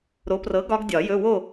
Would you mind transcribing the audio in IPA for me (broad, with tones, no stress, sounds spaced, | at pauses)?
ɾ o˨˥ p r ɤ˨˥ ɡ ɒ˦˥ ɡ dʲ ɒ˨˩˦ j ɵ˧˥˧ w o˥˨